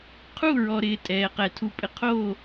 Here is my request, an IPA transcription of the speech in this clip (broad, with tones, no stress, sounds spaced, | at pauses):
qʰ u˦˨ ɹ ɔ˨ ɾ ɪː˨ tʼ ɛː˨ q ɛ˨ tʰ u˨ pʼ ɪ˨ qʰ o˦˨